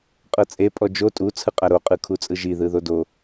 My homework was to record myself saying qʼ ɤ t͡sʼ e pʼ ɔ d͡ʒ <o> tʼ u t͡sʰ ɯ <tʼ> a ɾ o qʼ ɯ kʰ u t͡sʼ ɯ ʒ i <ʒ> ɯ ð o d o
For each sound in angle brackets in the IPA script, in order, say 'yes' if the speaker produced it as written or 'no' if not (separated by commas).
yes, no, no